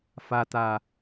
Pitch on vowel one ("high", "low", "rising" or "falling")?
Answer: low